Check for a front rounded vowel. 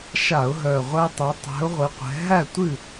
present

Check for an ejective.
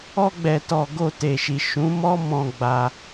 absent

